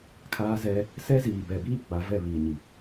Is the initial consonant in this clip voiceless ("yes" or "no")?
yes